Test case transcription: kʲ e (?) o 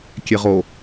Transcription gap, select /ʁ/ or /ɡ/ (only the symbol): ʁ